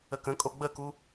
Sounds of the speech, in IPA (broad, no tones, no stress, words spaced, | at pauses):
əkə̃kʼo ɡ͡bəku